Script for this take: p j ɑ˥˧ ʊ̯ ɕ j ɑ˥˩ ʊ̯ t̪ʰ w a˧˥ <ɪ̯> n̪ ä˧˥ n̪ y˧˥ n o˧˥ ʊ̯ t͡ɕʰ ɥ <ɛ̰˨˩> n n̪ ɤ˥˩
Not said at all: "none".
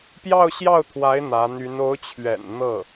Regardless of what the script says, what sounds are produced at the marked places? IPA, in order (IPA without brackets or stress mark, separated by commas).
ɪ̯, ɛ̰˨˩